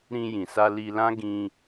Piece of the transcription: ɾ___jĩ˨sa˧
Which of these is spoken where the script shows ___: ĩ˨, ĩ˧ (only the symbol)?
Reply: ĩ˧